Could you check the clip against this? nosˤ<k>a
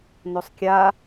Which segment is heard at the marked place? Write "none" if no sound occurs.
kʲ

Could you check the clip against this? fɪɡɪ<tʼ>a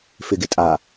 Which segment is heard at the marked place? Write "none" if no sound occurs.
tʼ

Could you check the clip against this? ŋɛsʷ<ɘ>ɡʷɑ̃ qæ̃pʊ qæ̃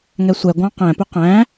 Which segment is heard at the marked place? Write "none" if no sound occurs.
ɛ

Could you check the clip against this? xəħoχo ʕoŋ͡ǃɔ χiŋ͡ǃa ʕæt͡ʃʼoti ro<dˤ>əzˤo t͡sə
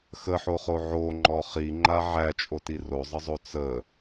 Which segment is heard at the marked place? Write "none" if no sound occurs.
zˤ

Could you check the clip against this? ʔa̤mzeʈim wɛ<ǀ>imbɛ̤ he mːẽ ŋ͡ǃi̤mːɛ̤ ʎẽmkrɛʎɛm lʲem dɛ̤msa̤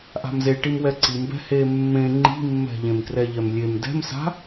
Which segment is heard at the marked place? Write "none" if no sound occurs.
ǀ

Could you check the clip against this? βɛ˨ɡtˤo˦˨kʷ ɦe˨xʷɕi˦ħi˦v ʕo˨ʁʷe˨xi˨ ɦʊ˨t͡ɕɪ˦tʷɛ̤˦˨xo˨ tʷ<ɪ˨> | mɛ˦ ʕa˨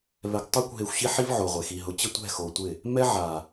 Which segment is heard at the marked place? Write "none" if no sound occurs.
ɪ˦˨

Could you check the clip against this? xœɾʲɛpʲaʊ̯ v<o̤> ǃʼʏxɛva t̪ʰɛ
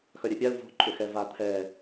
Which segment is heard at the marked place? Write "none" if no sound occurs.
o̤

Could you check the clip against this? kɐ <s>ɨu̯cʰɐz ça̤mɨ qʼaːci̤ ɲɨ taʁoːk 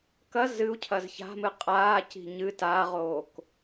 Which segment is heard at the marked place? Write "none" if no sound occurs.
z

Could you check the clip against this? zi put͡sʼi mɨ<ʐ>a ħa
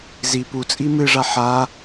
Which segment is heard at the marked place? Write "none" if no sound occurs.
ʐ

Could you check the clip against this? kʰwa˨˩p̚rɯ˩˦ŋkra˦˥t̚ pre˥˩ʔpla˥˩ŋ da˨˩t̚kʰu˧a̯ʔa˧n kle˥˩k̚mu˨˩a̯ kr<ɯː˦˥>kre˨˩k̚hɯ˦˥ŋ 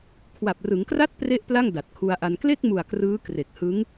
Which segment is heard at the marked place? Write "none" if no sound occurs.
ɯː˦˥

